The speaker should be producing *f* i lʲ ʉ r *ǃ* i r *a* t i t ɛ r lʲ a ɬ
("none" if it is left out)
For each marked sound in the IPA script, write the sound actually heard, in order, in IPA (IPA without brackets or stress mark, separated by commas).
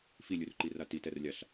f, ǃ, a